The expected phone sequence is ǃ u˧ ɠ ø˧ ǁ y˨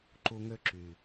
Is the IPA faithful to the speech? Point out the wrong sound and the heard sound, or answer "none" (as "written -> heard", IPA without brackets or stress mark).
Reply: ɠ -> ŋ